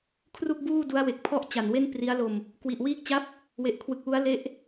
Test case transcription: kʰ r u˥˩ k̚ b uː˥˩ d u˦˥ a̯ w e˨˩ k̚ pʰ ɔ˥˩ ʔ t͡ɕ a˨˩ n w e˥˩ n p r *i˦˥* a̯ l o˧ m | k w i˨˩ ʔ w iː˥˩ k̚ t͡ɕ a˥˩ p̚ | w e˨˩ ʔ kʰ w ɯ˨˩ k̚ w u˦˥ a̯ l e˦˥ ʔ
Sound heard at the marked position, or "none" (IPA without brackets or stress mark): i˦˥